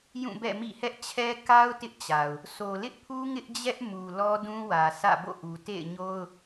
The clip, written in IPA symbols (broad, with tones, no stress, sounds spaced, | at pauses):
j ũ˦˨ b ɛ̰˦˨ m ḭ˦˨ h ɛ˦ ʔ t͡ɕʰ ɛ˦ k a˦ ʊ̯ t ɪ˦ ʔ t͡ɕ a˨ ʊ̯ | s o˨ l ɪ˦ ʔ pʰ u˦ ŋ ɪ˦ ʔ d͡ʑ ɛ˦ ʔ m u˨ l ɔ˦ d ũ˦ w ä˨ s ä̰˦˨ b o̰˦˨ ʔ u˨ t ḛ˦˨ ɪ̯ ɲ o˦ ʊ̯